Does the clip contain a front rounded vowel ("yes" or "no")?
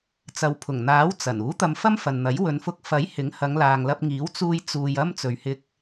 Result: no